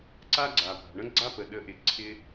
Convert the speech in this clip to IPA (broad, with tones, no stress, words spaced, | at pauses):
ǀa˧ɡ͡ǀa˩pa̤˩ɳə̃˧ ɡ͡ǀa˧pə˩ ɗə˩˥ʔɪ˩ǀʰɪ˧